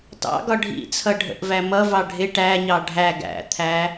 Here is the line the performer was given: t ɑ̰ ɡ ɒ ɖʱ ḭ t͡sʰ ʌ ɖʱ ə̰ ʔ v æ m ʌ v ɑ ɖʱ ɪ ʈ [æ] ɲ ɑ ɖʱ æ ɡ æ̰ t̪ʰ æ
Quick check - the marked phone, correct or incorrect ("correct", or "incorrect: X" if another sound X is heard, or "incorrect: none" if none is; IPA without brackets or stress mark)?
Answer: correct